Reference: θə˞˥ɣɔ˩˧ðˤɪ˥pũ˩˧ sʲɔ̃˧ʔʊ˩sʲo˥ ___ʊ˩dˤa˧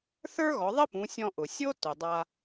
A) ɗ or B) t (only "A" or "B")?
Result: B